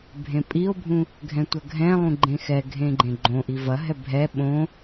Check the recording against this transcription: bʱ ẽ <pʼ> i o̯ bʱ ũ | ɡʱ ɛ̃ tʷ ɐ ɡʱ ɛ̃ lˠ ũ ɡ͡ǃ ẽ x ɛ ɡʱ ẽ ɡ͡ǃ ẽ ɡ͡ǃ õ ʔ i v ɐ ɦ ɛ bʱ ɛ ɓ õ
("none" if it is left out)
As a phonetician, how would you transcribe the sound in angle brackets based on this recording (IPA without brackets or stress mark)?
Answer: pʼ